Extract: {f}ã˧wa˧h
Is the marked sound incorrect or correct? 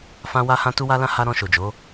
correct